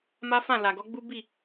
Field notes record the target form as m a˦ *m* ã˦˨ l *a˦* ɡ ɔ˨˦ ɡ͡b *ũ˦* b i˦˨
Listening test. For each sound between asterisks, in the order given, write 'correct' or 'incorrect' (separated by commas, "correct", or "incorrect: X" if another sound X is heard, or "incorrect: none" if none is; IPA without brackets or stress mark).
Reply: incorrect: f, incorrect: a˨, incorrect: u˦